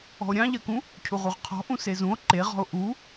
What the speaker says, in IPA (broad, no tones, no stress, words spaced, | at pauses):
ɔ̤o̯ɾʲɑ̃ʎɜkũ | cʰuʁuʁqʰɔ̤ ʔũsezũo̯ ǃeʁɔ̤o̯ ʔu